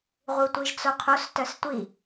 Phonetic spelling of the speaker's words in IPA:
ʁ u tʷ i ʒ t͡s o qʰ o s t œ s tʷ i

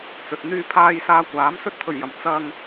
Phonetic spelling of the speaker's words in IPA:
t͡s ɵ˨ t̚ n̪ yː˧ pʰ aː˨ j s aː˨ kʷ aː˨˥ m s ɵ˥ t̚ t̪ʰ ɵ˨˩ ɥ j ɐ˨˩ m t͡s ɐ˧ ŋ

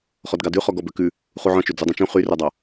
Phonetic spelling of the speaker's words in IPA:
χ ɔ d ɡ ɑ d ʉ χ ɔ ɡ ɔ b ø k ʉ | χ u ʕ ɔ̃ t͡ʃ ø d͡z ø dˤ ũ t͡ʃ ũ χ y r œ dˤ ɑ

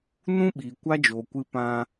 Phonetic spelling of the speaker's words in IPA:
n ũ˦ ɓ iː˨ kʷ a˦ d͡ʒ oː˨ kʷ ɨ˧ p ã˧

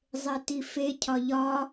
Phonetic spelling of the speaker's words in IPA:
zˤ e t i f e cʰ ɒ ʎ ɒ

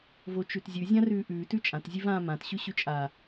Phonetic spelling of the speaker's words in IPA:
v o t͡ʃ ʉ t zʲ ʉ zʲ ã r ʉː ʔ ʉː t ʉ t͡ʃʼ ã t zʲ ʉ v ãː m ã t ɕ ʉ ɕ ʉ t͡ʃʼ a

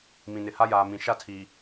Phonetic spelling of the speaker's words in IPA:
m ĩ˨ n ɪ˨ h a˦ j aː˨ m ĩ˨ ʃ a˦ tʰ iː˨

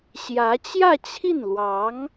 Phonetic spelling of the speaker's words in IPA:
ɕ j ä˧˥ t͡ɕ j ä˥˧ t͡ɕʰ i˥˩ n l w ɑ˧˥ ŋ

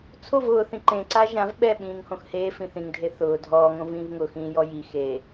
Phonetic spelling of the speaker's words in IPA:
t͡sʰ o v ʊː θ ĩ ǃ ẽ ǀ a ʒ ã v ɓ ɛ ɓ ĩː ŋ h õ x h eː f ĩ θ ĩ ŋ dʱ e θ ʊː dʱ ɔː ŋ õ v ĩː v ŋ ʊ x ĩː j ɔ j i x e

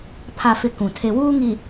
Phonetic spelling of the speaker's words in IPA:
pʰ a˨ f ɪ˨ k ũ˨ tʰ e˨ w uː˦ ŋ i˨

